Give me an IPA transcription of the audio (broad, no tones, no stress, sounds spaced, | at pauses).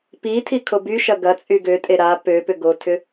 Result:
p i tʰ i kʰ o b y ʃ ɐ ɡ ɐ t͡sʼ y ɡ ø tʼ e ɾ a p ø p ʏ ɡ o tʰ ʏ